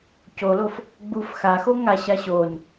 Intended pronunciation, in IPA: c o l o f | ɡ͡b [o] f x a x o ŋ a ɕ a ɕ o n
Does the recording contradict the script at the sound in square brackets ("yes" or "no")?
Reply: yes